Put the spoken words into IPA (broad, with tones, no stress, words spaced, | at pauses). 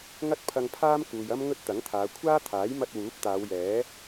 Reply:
ŋɐ˥t̚pʰɐ˧ŋpʰaː˥mkuː˨j ɐ˥mŋɵ˥t̚t̪ɐ˨˥ŋt̪ʰaː˨˧ kʷʰaː˥t̪ʰaː˨˥jmɐ˧t̚ wuː˨˥p̚t̪aː˨˧wjɛː˨˥